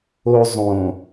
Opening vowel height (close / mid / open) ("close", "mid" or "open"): mid